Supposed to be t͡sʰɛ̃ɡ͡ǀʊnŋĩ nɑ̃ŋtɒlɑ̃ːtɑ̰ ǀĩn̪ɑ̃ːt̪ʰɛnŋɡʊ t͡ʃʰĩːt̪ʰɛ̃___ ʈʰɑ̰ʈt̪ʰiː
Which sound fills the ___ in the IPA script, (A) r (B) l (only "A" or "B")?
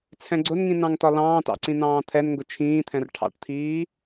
A